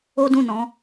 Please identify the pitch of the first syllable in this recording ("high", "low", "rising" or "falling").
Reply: high